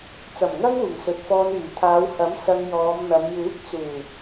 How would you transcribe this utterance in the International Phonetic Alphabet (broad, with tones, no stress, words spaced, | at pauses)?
t͡sɐ˨˩mŋɐ˥ŋuː˨˩ŋ sɵ˨t̚fɔː˧nyː˨˩ t̪ʰaː˨˧whɐ˨˥m sɐ˧ŋjɔː˨˧mn̪ɐ˨˧m juː˨˥k̚t͡suː˨˩